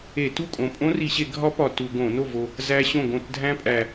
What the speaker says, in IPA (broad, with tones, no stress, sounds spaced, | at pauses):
e˧˩˧ t u˥˩ kʼ õ˨˩ pʼ õ˦˥ r i˧˩˧ ɕ e˧˩˧ ɡʱ ɒ˦˥ p ɒ˨˩ t u˧˩˧ ɡ õ˧˩˧ n o˥˩ v o˨˩ | z æ˦˥ ɕ õ˥˩ ɡ õ˥˩ t dʱ æ̃˦˥ pʼ æ˨˩